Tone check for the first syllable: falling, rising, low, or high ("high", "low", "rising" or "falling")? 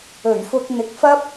low